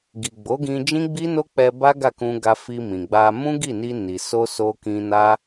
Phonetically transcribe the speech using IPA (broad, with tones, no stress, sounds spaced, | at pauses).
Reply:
ɡ i˨ ɡ͡b o˨˦ ɡ ĩ˧ d͡ʒ ĩ˦ ɡ͡b i˦ n o˦ k͡p ɛ˧ b a˦ ɡ a˦˨ k ũ˧ ɡ a˧ f i˧ m ĩ˨ ɡ͡b a˧ m ũ˦ ɡ i˦˨ n i˧ n i˨ s o˧ s o˧ k ĩ˧ n a˦